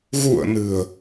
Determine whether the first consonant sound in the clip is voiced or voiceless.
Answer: voiced